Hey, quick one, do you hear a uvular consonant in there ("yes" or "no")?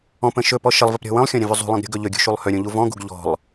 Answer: no